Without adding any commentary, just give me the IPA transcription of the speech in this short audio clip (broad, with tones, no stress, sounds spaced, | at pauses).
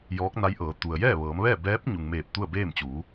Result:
j ɔː˧˥ k̚ n a˧˥ j ʔ ɤː˩˧ t̪ u˩ ə̯ j ɛː˥˨ ʋ ɤː˩˧ m ʋ ɛː˥˨ b ɛː˧˥ p̚ ɲ u˩ ŋ m eː˧˩ p̚ t̪ u˥˨ ə̯ b eː˥˨ m t͡ɕ uː˩˧